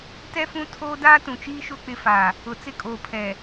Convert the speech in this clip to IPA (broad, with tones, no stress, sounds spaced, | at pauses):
t ɛ˦ f ũ˦ tʰ oː˦ d aː˦ t ũ˨ t͡ʃ iː˦ ʃ ʊ˦˨ k͡p ɪ˦ f a˨ | ʊ˨ t͡s ɪ˦ kʼ oː˨ pʰ ɛ˨